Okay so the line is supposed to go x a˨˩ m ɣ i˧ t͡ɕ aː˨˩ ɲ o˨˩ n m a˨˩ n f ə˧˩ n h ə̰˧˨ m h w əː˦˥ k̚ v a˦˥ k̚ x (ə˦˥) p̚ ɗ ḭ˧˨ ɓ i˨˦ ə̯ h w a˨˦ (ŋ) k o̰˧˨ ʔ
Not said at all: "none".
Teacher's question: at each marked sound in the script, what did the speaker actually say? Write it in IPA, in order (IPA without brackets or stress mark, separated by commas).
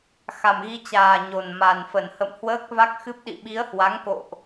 ɨ˦˥, ŋ